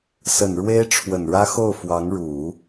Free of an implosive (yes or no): yes